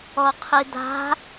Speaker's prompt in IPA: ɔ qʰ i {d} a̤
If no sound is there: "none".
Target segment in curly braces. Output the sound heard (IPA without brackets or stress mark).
d